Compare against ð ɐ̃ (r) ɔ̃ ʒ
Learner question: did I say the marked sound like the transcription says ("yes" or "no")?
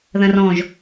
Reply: yes